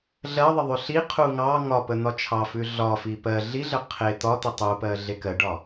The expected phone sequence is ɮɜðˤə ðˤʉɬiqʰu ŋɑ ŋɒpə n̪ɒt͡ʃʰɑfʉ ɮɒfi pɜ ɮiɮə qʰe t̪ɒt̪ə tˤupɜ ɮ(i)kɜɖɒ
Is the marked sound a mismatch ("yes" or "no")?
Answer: yes